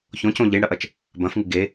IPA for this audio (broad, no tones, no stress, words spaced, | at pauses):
çõcõ ʎiɳɽɐʔɐt͡ʃ | bɐ̃fŋɨ ɡe